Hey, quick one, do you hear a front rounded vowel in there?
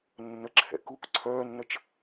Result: yes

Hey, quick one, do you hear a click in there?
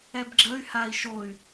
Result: yes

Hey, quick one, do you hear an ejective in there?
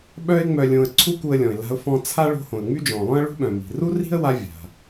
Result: no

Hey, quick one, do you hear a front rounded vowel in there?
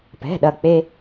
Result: no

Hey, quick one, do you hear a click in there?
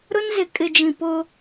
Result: no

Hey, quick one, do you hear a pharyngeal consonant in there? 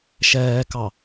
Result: no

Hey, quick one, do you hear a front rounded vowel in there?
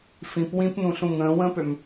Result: yes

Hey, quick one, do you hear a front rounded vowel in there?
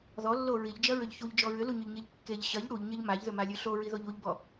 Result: yes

